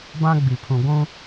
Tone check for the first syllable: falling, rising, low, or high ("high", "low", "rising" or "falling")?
high